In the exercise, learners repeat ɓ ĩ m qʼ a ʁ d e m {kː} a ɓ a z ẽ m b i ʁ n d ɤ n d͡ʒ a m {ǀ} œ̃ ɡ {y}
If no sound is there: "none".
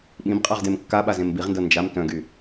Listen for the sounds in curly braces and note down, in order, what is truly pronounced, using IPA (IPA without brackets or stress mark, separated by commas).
kː, t, y